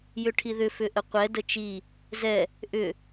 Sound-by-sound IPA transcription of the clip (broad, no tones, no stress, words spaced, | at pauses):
jʏʈʰiðʏ fʏʔəqʷɛ dət͡ʃi | zɛ | ʔʏ